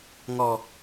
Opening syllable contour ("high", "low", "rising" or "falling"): low